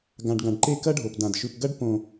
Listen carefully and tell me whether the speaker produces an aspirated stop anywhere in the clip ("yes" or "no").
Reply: no